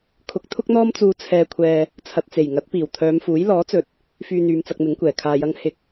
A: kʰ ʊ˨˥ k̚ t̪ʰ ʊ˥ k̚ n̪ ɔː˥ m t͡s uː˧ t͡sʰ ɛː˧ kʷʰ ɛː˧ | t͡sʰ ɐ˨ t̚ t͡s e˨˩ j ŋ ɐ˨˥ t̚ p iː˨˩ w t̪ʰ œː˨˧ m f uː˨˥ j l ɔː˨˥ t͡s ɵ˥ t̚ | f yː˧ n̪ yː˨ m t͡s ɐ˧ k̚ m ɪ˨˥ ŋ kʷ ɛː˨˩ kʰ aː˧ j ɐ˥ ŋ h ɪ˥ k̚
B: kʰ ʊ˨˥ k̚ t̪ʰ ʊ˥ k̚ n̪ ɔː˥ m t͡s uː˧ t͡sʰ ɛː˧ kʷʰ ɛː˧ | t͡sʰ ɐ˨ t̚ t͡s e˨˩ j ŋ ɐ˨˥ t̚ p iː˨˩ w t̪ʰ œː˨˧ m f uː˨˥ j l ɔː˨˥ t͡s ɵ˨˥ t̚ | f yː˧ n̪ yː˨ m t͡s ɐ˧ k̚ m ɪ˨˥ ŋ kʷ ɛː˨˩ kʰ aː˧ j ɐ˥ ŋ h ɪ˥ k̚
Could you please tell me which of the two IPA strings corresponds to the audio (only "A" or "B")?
B